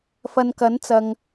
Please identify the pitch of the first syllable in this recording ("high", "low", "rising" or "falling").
low